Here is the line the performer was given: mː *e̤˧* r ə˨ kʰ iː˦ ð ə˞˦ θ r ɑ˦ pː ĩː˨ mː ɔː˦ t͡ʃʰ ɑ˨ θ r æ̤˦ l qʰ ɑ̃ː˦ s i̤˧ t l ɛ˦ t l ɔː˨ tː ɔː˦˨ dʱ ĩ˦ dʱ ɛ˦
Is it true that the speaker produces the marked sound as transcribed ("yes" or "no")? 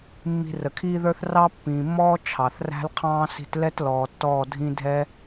no